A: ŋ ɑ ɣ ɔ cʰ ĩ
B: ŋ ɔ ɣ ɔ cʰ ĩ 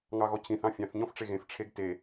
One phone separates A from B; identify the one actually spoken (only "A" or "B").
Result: A